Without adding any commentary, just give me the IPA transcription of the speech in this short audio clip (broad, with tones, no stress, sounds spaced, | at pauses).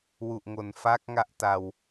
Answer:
w u˨˩ ʔ ŋ o˨˩ n f a˦˥ k̚ ŋ a˦˥ ʔ t a˧ w